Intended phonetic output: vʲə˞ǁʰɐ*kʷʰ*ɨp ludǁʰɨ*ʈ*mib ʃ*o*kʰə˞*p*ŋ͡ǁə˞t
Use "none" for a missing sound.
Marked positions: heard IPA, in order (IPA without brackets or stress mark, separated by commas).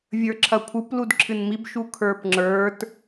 kʷʰ, n, u, p